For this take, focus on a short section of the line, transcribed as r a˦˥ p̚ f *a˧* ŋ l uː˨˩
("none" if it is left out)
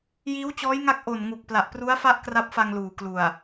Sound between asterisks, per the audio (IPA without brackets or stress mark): a˧